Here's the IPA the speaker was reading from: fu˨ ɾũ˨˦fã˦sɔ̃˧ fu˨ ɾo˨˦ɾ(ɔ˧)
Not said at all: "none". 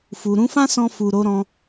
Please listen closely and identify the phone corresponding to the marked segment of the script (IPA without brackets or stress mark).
ɔ̃˧